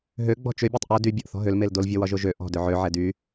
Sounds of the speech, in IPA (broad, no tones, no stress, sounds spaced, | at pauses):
ɦ ø ɡ͡b ɔ̤ t͡ʃ ø bʲ e tˤ ʔ o d y bʲ ɒ ʔ θ ɔ̤ ɦ ø l m e l d o l vʲ ɔ w ɒ ʒ o ʒ ø ʔ ɔ̤ d ø ʕ ø ʕ ɛ d y